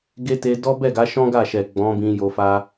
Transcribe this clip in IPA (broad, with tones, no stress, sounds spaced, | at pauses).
ɡ e˦ t e˧ d ɔ˦ b ɛ˦˨ ɡ a˨˦ ʃ ɔ̃˦ ɡ a˦˨ ʃ ɛ˨ ɡ͡b ɔ̃˨˦ b ĩ˧ j o˧ f a˦